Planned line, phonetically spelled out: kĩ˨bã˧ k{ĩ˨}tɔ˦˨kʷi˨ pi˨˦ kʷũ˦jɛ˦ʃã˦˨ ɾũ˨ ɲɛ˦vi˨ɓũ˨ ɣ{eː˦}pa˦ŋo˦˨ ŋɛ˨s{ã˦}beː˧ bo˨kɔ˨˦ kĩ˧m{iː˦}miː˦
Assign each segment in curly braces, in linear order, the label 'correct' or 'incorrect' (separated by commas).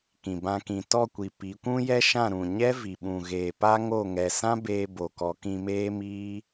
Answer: correct, incorrect, correct, incorrect